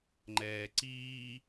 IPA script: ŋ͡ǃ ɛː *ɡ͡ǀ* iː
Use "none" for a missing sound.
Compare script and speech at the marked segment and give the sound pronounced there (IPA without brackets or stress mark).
ǀ